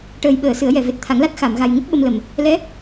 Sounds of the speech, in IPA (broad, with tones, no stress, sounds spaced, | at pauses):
ʈ əː˨˩ j ɓ əː˨˩˨ s ɨ˨˩˦ ə̯ j ɛ˨˩ v e˨˩ t̚ t̪ʰ a˨˩˦ ŋ l a˦˥ t̚ x a˨˩˨ m ɣ a˨˩ j ŋ ə˦˥ k̚ ɓ ə˧ m l ə˨˩ m | l ɛ˧˥